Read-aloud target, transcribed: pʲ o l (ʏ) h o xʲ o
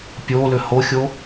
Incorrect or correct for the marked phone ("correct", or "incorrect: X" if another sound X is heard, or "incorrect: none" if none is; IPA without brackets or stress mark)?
correct